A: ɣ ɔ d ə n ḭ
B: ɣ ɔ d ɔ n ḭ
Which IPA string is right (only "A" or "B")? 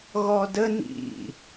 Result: A